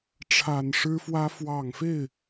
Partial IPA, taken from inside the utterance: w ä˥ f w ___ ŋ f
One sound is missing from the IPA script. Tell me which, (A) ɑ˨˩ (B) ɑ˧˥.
A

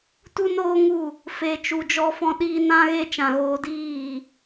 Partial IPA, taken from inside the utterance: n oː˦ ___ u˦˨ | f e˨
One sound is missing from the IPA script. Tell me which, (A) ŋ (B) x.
A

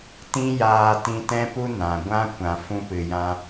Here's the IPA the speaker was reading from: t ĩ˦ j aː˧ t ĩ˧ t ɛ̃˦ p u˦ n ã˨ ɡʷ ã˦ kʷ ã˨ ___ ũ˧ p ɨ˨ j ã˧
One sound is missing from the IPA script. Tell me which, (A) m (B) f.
B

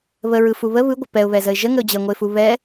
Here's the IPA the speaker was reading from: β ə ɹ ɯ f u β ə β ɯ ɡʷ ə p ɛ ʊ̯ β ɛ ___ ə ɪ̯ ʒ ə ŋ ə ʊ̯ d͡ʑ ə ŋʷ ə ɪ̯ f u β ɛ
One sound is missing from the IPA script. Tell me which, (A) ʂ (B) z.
B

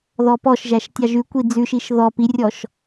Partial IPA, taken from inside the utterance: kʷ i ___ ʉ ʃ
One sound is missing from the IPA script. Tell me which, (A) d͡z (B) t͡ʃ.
A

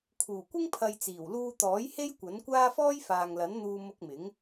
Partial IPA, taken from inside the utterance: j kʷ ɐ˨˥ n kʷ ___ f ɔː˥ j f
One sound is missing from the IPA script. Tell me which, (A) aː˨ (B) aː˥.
B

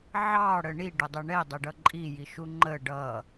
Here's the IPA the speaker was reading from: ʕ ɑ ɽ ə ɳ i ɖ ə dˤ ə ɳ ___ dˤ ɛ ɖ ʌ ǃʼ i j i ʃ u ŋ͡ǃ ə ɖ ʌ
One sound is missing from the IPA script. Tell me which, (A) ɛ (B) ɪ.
A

